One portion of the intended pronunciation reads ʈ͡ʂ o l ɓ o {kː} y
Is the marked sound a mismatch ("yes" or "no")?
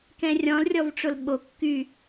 no